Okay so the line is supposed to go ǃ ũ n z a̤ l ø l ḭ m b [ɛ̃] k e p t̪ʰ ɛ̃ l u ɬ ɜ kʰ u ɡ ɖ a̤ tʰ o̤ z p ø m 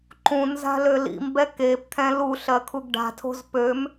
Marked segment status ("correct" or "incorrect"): incorrect